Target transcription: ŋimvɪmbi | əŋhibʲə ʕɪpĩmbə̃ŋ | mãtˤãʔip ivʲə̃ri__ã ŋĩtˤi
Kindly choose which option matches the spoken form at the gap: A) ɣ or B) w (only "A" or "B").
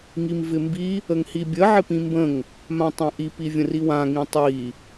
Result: B